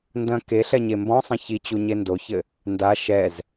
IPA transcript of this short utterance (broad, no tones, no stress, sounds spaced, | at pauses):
n d ɐ̃ k e ɬ ɛ ɲ e m b ɔ̃ sˤ ɐ̃ ç i t͡ɕ u ɲ e n d o ç ɘ | n d a ʃ ɛ z